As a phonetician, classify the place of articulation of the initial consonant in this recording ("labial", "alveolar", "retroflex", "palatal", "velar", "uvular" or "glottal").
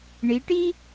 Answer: retroflex